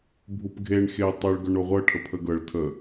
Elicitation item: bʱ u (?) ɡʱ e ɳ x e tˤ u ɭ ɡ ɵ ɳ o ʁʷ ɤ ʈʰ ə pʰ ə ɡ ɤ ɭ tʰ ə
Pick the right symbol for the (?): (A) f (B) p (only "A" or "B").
B